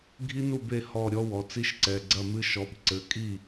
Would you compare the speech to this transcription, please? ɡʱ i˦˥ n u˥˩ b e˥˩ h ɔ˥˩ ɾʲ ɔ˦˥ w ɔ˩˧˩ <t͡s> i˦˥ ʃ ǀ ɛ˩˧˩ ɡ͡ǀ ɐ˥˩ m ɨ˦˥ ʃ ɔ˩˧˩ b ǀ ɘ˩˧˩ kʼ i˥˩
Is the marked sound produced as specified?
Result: yes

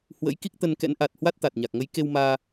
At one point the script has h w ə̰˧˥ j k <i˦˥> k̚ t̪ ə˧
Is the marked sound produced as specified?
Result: yes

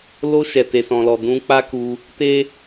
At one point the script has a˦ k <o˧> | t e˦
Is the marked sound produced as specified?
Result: no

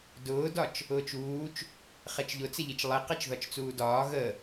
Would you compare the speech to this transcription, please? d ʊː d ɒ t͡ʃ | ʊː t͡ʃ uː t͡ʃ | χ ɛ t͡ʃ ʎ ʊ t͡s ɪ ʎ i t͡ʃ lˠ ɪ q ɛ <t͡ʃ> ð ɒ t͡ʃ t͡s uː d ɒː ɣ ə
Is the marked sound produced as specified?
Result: yes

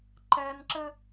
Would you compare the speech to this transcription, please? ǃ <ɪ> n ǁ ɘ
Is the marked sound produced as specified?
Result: no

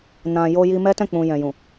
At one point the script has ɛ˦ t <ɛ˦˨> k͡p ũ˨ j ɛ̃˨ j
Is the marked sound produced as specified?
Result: no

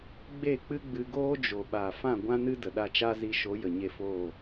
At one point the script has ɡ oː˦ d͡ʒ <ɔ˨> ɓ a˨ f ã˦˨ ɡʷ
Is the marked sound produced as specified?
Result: no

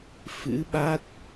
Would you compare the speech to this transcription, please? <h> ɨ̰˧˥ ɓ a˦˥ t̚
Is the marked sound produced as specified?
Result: no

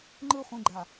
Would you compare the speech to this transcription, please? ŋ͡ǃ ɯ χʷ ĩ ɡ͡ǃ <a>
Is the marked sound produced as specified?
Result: yes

